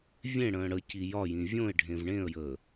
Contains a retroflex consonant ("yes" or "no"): yes